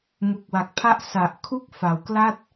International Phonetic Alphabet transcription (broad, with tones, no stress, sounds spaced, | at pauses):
m u˨˩ k̚ w a˨˩ k̚ pʰ a˥˩ ʔ s a˨˩ ʔ kʰ u˥˩ k̚ f a˩˦ w k l a˥˩ t̚